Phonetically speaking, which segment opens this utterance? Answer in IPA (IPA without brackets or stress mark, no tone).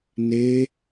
n